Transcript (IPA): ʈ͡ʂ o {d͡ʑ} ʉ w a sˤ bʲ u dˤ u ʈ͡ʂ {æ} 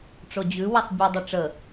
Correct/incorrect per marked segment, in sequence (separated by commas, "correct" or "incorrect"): correct, incorrect